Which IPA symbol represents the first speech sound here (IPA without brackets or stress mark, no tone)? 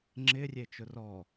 ŋ͡ǁ